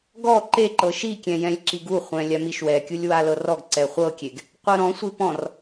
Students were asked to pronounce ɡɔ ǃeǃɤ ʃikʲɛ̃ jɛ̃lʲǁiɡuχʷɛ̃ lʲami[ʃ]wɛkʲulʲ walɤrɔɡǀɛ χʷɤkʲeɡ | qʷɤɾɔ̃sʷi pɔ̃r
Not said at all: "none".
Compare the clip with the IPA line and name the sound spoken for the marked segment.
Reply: ʃ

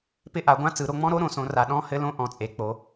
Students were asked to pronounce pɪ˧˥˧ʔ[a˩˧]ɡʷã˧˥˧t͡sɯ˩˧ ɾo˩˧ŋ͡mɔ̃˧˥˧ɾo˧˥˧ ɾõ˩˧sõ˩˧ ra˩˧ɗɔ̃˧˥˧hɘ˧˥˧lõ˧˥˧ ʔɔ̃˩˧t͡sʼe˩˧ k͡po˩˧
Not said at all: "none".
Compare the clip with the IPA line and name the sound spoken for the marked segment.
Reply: a˩˧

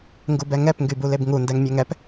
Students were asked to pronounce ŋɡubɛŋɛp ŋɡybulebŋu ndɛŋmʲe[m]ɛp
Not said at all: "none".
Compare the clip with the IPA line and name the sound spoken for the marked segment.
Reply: ŋ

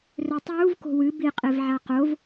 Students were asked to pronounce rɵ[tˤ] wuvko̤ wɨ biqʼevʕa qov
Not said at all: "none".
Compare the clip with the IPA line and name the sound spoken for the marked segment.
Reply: tˤ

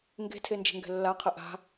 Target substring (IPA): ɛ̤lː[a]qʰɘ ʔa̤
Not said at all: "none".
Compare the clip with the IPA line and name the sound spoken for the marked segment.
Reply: a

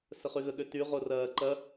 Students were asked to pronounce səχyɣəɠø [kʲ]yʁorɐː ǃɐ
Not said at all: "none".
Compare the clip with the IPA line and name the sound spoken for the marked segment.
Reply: t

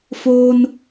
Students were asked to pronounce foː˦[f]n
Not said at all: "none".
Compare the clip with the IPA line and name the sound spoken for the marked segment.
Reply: none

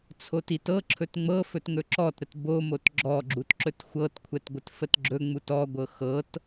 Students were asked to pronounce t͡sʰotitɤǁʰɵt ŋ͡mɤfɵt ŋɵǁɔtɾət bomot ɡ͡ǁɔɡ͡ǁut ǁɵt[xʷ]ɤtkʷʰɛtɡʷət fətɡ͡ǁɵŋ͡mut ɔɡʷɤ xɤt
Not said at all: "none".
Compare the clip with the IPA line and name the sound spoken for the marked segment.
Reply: xʷ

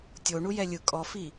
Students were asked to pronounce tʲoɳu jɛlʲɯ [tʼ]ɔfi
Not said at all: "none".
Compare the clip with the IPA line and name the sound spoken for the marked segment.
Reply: kʼ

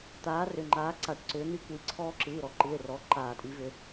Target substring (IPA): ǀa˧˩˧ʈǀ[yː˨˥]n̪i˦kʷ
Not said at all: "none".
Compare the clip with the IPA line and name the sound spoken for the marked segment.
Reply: ʏː˨˥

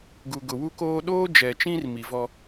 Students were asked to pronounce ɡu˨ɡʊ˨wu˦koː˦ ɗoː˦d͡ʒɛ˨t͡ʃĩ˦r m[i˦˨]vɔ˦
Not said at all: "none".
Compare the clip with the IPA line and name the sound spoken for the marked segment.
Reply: i˨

